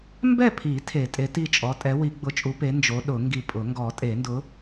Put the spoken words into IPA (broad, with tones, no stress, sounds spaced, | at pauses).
m b ɛ˥˨ pʰ i˨˩˦ tʰ e˨˩˦ tʼ e˨˥ t i˥˨ t͡ʃʼ ɔ˨˥ tʼ ɛ˨˥ w i˨˩˦ ɡ͡b ʊ˨˥ t͡ʃʼ u˨˥ p e˨˥ n d͡ʒ o˨˥ ɗ ʊ˨˩˦ ŋ ɡ i˧˩ pʼ ʊ˨˩˦ ŋ ɡ ɔ˨˩˦ tʼ e˨˩˦ n d ʊ˨˥